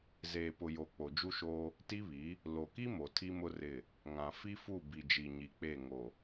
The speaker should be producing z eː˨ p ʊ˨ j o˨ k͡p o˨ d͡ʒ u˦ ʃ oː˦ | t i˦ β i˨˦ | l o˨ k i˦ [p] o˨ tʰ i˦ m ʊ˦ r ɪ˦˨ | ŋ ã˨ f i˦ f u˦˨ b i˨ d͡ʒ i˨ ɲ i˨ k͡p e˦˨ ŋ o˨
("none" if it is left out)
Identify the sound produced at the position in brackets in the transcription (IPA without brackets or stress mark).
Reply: m